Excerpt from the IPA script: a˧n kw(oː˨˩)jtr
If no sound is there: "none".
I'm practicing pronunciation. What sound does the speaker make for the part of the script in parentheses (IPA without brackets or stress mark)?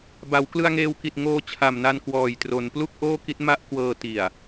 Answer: ɔː˨˩